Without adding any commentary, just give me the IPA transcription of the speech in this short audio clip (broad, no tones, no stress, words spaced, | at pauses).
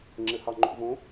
ŋ͡ǁɘhɑŋ͡ǃo̰võ